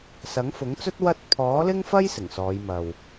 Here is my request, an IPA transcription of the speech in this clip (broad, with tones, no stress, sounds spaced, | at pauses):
s ɐ˨˥ ŋ f ʊ˨˥ ŋ t͡s ɵ˥ t̚ w ɐ˥ t̚ pʰ ɔː˨˥ l ɪ˥ ŋ f ɐ˥ j s ɪ˨˩ ŋ s ɔː˨˧ j m ɐ˨ w